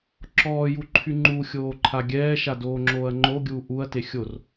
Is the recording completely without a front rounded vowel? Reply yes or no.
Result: no